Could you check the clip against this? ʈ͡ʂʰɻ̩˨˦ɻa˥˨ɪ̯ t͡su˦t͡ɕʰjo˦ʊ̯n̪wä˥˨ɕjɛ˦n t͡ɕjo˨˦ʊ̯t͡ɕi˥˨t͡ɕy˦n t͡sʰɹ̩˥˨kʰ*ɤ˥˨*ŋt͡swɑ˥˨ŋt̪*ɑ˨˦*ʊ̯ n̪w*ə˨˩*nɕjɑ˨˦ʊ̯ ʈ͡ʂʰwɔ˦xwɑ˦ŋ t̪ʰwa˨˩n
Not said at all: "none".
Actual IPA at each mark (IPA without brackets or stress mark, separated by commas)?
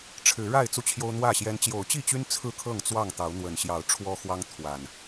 ɤ˥˨, ɑ˨˦, ə˨˩